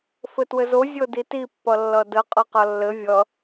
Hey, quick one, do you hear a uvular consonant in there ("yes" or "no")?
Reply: yes